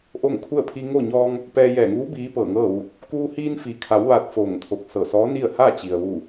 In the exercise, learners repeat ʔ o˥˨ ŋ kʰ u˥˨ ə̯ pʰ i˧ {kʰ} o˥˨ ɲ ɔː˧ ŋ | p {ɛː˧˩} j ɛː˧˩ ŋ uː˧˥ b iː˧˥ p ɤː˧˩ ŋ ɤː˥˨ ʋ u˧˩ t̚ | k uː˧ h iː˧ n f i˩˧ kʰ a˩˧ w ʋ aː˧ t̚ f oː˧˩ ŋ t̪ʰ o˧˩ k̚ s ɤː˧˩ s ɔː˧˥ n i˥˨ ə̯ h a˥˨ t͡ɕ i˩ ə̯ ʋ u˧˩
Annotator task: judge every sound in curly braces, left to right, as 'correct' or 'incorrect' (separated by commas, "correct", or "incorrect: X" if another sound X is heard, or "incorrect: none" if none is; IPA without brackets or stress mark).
incorrect: ŋ, incorrect: ɛː˧